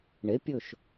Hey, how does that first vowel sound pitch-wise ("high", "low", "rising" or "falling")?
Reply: rising